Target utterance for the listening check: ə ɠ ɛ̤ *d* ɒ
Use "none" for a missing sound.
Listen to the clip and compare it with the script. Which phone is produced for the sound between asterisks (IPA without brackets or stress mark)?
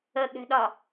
ɗ